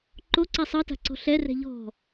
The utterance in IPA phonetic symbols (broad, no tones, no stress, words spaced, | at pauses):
ǃoǀɛ sˤɤta̤ǀɔ̤ ɬɛrɛ̤ ʎɔ̤